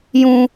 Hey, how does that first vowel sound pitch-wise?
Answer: high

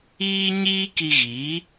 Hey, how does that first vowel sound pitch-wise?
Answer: high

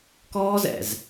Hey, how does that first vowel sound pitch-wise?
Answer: high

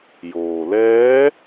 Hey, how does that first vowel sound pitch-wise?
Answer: low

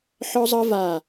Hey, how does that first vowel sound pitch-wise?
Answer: high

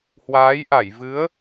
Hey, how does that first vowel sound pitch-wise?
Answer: rising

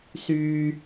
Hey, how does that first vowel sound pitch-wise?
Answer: low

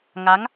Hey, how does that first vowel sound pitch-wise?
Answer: rising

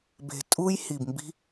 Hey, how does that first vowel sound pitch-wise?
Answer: low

